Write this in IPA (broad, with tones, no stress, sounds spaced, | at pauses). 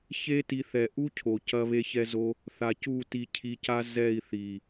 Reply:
ç e˦ t i˧ θ ɛ˨ ʔ u˦ cʰ o˨ c ɐ˦ β e˦ ç ɛ˦ z o˦ | θ a˨ c u˦˨ t i˧ cʰ i˧ c a˦ z ɛ˦˨ i̯ θ i˨